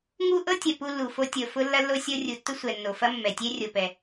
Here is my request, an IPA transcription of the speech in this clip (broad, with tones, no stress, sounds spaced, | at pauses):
ŋ u˥ ʔ ɤ˥ tʲ ɐ˩ p u˥ lː u˩ f o˥ tʲ ɤ˩ f ʊ˥ lː ɐ˥ lː o˥ sʲ ɤ˥ rʲ u˩ tː ʊ˥ sʷ ɛ˩ nː o˩ f ɐ˥ mː ɛ˩ tʲ ɛ˥ rʲ o˩ p ɛ˩